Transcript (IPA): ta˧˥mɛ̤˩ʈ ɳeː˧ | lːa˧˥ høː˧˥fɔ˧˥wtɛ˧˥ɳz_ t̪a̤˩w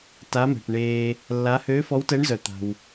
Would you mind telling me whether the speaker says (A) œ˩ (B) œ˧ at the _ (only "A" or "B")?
A